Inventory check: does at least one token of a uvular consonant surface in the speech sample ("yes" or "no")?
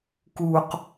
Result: yes